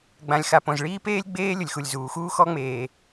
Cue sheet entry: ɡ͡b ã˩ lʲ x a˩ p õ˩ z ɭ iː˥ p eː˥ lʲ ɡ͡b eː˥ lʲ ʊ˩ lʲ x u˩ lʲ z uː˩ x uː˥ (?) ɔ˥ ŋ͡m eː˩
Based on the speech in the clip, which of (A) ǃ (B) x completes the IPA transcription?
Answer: B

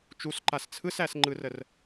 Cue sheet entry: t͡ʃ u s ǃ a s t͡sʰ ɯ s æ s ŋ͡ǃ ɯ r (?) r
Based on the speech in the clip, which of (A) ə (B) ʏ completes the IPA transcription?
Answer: A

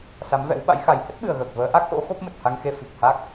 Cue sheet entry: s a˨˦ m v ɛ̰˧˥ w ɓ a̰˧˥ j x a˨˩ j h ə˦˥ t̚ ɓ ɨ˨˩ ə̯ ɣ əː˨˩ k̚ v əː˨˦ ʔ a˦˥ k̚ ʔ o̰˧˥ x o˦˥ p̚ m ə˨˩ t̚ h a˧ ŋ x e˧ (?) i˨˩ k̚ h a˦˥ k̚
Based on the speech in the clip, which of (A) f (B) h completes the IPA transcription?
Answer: A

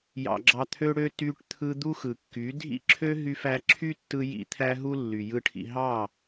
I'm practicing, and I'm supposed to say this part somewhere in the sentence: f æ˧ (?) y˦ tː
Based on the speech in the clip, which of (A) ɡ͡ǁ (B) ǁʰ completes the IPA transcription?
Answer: B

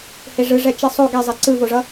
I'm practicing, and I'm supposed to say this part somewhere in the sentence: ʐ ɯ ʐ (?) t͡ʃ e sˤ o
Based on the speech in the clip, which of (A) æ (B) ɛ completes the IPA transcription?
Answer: B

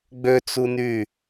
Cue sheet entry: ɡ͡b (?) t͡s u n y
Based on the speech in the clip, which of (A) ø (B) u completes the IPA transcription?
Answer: A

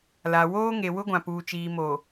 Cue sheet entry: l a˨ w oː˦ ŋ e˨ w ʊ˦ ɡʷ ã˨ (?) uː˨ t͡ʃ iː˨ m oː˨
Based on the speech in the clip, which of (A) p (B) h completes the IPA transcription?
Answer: A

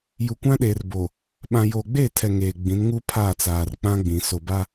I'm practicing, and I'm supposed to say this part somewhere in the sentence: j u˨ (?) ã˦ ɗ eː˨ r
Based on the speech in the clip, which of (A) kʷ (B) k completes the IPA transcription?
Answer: A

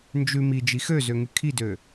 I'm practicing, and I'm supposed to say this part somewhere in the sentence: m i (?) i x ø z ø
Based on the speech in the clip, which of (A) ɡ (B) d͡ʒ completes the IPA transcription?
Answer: B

